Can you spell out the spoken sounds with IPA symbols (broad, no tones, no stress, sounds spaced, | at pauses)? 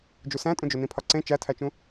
d͡ʒ u s æ̃ tʼ ũ d͡ʒ o n ĩ pʰ ɒ ǀ ẽ t͡ʃ æ tʰ æ t͡ʃ ũ